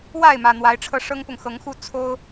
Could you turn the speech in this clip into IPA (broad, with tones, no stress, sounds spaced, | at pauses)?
w a˥˨ ɪ̯ m ä˨˩ n̪ w a˨˦ ɪ̯ ʈ͡ʂʰ ɤ˧ ʂ ɤ˦ ŋ p ʊ˨ ŋ x ɤ˨˦ ŋ x u˥˨ t͡sʰ o˦ ʊ̯